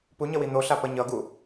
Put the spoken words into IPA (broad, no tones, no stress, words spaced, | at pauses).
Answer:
puɲʌwi n̪oɬa pʌɲʌɡu